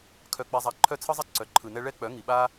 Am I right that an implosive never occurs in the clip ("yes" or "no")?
no